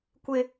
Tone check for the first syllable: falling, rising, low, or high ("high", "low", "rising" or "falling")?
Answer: high